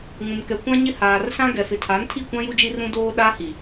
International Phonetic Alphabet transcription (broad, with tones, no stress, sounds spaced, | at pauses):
ŋ ũ˨ m k ɛ˨ kʷ ã˦ ɲ ɪ˦ h aː˨ r s ã˦ ɡ ɛ˨ f ɪ˨ tʰ aː˨˦ n tʰ i˦˨ kʷ ã˦ j u˦ d͡ʒ i˦ r ũ˦ d oː˦ ɗ aː˦ h i˨